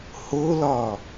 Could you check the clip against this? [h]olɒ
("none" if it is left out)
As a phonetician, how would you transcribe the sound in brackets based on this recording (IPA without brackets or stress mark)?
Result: h